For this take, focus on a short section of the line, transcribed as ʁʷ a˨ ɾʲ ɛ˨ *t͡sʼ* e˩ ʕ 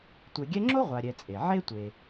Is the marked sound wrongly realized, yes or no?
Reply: no